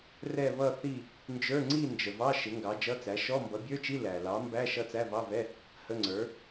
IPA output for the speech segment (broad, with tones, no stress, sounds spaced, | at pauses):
r ɛ˥˧ β ʌ˥˧ θ i˥˧ | n d͡ʒ ə˞˧˥˧ ŋ͡ǀ i˥˧ n d͡ʒ ə˨ v ɑ˧˥˧ ʃ ɪ˨˥ ŋ ɡ ɑ˨˥ d͡ʒ ʌ˧˥˧ t͡s æ˨˥ ʃ ɔ˧˥˧ m b ʌ˨˥ bʲ ə˞˧˥˧ t͡ʃ i˧˥˧ l æ˨ l ɑ˨˥ m b æ˧˥˧ ʃ ʌ˥˧ t͡s æ˧˥˧ v ɑ˧˥˧ v ɛ˧˥˧ | h ə˧˥˧ ŋ͡ǀ ə˞˨˥